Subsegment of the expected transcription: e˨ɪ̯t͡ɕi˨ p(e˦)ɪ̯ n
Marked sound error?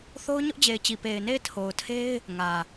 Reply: yes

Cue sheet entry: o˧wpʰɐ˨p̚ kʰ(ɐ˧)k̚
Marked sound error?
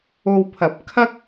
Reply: yes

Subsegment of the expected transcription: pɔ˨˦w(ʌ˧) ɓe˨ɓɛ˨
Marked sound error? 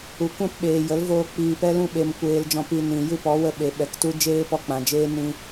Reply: yes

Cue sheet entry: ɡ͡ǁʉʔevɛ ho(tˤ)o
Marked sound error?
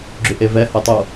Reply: no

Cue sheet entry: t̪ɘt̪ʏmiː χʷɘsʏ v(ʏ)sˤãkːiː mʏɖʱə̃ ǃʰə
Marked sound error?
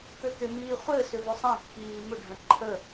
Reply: no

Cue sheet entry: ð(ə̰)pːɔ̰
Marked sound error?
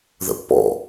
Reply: no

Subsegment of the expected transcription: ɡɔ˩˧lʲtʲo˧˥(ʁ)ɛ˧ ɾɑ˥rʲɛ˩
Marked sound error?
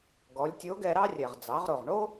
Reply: yes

